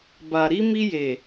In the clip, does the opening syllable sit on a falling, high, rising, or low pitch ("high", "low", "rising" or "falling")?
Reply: low